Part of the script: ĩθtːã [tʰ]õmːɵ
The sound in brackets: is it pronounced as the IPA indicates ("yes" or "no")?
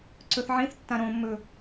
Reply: no